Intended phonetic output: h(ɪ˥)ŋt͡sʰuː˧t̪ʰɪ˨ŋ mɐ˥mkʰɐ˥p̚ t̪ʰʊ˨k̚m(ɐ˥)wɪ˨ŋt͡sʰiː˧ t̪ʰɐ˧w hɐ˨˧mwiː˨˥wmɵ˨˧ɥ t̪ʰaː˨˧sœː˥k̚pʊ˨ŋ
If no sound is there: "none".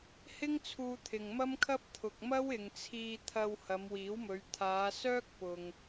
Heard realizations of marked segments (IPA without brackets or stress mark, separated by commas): ɪ˥, ɐ˥